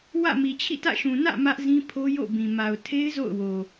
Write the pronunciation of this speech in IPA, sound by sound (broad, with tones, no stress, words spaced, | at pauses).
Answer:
wä̰˦˨ mi˨t͡ɕʰḭ˦˨tä̰˦˨ ʃũ˨nä̰˦˨ mä˦ʔzĩ˦ pʰo˦jo̰˦˨bĩ˨ ma˨ʊ̯tʰe˦ɪ̯ zo̰˦˨ʊ̯wo˨